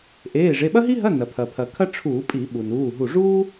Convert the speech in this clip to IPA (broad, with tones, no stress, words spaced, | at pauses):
ʔeː˩˧˩ʐe˩˧˩ ɓɐ˥ɦi˥ɦɐ˧˥˧ nɐ˩ pʰɐ˩pʰɐ˩ kʰɐ˥ʈ͡ʂʰuː˧˩˧pʼi˧˩˧ ɓu˩nuː˩˧˩ɦu˧˩ ʐuː˥